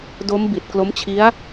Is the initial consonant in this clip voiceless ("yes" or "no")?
no